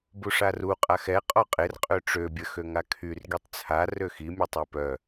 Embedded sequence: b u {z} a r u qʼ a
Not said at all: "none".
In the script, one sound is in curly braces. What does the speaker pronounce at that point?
ʂ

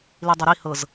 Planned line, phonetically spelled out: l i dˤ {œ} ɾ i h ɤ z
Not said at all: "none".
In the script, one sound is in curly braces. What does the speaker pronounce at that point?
œ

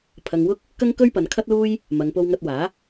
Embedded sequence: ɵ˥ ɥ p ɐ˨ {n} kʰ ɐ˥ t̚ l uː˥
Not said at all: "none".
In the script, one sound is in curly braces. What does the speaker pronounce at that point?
n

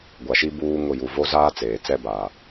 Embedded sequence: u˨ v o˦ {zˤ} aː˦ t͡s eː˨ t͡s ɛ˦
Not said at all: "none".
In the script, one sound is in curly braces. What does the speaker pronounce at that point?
z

